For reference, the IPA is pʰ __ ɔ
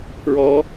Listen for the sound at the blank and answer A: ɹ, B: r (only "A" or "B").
A